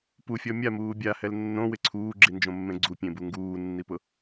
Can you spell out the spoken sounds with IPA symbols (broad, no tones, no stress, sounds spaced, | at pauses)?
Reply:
p u fʲ ɔ mʲ a m uː bʲ a h ɛ l nː õ w ɪ ǀʰ uː ɡ͡ǁ i n d͡ʒ õ mː ẽ ɡ͡ǀ u pʲ ẽ b u ŋ ɡ uː nː i p ʊ